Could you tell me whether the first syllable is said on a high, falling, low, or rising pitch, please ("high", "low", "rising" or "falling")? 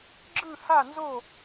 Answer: falling